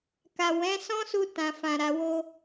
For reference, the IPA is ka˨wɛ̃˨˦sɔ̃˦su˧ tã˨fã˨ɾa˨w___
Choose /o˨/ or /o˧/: o˧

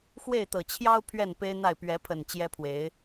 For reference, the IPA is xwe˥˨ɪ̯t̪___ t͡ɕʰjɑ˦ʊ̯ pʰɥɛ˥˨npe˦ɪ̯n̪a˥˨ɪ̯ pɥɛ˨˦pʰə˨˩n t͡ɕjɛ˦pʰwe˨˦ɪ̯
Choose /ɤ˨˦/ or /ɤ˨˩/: ɤ˨˩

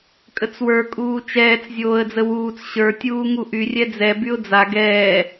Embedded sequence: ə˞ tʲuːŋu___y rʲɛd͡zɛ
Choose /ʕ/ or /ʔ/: ʔ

